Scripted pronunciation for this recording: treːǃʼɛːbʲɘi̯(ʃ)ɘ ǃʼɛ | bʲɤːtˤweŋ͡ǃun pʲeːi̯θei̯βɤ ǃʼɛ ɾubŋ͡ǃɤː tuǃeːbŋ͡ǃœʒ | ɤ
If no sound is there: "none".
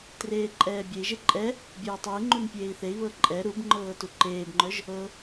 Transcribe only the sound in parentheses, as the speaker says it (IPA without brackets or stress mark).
ʒ